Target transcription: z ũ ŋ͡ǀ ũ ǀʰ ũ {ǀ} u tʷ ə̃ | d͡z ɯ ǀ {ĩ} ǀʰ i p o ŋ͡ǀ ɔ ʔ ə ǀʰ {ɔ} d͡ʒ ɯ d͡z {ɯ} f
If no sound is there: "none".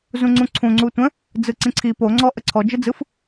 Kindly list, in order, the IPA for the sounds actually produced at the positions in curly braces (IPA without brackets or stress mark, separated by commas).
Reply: ŋ͡ǀ, ĩ, ɔ, ɯ